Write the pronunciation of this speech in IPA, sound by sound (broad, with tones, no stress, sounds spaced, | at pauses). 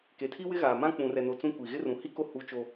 k e˨ tʰ i˦ w ɪ˦ ɣ aː˨ m ã˦ k͡p ũ˨ r ɛ˨ n o˨ t͡s ũ˦ kʷ i˨ ɣ ɪ˦ r ũ˨ h i˦ k o˦ h u˦ t͡ʃ o˦